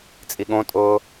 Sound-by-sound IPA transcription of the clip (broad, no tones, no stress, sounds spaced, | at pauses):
t͡sʼ i ɠ õ tʼ ʊː